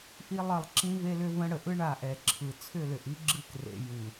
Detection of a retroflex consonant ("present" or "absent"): present